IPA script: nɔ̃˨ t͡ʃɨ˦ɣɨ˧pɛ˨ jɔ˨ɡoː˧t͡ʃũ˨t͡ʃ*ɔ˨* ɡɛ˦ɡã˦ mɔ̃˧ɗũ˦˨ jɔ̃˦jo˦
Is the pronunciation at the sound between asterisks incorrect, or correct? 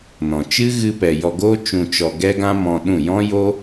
correct